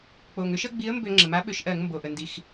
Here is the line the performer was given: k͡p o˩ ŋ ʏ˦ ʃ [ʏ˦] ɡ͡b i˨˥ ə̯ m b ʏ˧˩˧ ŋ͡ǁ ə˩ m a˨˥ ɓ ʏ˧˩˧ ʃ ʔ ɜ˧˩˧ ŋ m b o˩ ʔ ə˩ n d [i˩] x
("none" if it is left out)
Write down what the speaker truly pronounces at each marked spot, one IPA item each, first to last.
ə˦, i˩

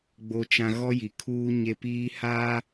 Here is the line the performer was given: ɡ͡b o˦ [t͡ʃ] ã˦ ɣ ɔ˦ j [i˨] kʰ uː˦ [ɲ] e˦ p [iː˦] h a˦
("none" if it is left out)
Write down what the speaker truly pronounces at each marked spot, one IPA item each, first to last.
t͡ʃ, i˨, ɲ, iː˦

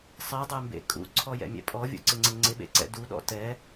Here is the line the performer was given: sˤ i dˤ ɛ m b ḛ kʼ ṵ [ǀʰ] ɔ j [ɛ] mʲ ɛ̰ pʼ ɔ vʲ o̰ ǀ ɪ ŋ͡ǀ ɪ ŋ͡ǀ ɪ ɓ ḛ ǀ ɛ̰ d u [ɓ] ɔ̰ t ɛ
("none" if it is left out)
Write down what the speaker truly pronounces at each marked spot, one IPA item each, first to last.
ǀʰ, ɛ̰, ɗ

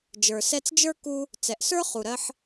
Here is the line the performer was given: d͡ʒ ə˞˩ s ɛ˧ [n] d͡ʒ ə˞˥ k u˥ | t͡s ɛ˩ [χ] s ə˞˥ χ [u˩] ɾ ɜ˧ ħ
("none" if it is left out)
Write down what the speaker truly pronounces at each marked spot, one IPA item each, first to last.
t͡s, ʔ, u˩

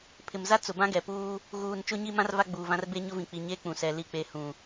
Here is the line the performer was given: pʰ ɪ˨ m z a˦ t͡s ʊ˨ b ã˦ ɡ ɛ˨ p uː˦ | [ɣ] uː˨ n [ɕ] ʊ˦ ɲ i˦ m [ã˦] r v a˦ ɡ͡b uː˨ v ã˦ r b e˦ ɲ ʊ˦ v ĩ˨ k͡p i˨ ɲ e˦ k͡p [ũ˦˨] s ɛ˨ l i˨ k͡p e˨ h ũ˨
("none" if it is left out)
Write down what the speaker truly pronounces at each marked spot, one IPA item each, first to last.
ɣ, t͡ʃ, ã˦, ũ˨

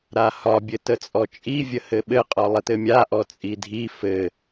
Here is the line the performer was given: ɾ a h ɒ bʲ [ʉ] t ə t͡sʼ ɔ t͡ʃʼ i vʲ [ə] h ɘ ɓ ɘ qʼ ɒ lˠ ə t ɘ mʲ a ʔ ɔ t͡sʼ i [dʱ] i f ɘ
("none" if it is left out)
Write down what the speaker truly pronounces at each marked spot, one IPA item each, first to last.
ɘ, ə, dʱ

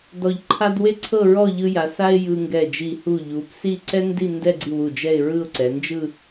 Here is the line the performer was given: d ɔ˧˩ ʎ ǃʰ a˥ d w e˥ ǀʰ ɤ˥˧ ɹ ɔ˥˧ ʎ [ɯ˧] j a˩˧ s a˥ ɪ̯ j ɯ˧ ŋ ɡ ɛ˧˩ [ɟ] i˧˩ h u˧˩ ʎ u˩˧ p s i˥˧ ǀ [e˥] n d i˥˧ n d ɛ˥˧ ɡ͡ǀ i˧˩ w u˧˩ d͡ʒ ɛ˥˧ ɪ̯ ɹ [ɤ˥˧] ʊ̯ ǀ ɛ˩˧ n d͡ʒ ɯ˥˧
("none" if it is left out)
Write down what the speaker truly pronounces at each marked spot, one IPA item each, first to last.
ɯ˧, d͡ʒ, ɛ˥, ɯ˥˧

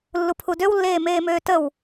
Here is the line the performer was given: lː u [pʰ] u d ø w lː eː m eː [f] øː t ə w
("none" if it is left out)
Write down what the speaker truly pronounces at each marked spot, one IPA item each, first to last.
pʰ, m

